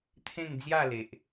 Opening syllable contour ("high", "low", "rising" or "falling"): falling